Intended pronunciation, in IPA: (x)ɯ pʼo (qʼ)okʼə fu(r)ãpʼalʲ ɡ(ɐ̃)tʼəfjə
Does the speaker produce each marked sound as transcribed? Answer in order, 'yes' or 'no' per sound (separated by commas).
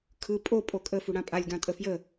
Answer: no, no, no, no